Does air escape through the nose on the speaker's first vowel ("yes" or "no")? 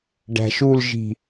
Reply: no